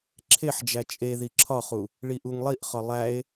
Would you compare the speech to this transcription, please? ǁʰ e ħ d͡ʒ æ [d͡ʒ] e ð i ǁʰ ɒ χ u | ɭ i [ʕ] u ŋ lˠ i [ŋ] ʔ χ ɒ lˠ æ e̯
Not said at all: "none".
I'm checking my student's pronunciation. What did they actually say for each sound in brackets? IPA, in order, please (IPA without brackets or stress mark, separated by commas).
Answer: t͡ʃʼ, ʔ, none